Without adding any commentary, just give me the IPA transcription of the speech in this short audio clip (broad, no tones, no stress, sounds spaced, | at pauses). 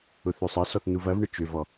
ʊ θ ø sˤ ɐ s ɔ θ n u v ɐ v ɳ ə t͡ʃ ø v ɔ